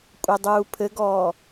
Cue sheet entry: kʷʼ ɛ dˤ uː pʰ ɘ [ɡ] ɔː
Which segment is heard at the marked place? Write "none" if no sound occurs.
ɡ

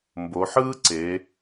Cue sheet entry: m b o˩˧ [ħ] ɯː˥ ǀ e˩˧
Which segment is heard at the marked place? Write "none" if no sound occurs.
ħ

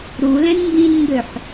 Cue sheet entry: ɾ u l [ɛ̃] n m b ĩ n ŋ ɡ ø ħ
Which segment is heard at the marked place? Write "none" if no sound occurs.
ɛ̃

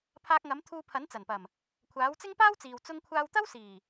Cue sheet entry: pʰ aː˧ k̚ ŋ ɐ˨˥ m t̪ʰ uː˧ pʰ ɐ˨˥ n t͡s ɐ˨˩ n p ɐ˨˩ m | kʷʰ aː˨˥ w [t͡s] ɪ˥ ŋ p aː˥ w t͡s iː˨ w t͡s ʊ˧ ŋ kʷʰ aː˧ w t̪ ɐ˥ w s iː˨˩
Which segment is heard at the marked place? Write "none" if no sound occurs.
t͡s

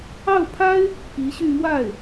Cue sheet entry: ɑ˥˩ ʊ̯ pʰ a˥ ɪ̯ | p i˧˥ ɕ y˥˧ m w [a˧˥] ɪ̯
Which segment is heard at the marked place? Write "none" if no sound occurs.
a˥˩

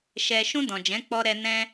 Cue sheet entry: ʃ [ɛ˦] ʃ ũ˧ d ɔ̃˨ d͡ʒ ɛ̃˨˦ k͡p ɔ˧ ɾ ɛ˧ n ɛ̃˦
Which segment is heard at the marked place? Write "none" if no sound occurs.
ɛ˨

